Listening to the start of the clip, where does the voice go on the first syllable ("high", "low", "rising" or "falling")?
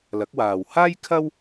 rising